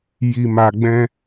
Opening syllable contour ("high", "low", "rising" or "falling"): low